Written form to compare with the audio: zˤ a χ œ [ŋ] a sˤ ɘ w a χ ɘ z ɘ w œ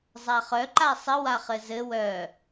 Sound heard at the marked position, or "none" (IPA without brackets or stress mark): ǃ